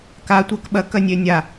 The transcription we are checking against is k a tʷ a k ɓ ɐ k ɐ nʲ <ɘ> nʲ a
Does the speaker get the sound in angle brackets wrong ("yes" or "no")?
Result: yes